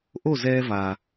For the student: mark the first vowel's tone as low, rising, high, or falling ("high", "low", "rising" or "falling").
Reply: falling